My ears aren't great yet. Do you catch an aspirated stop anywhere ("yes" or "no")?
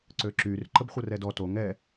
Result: no